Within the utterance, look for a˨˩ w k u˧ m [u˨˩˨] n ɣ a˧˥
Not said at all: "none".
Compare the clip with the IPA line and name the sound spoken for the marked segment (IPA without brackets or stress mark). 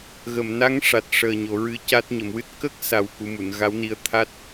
u˨˩˨